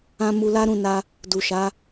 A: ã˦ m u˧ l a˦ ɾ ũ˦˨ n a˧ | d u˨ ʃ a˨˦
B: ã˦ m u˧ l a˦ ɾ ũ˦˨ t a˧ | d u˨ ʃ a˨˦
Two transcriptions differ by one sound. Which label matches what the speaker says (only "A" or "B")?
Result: A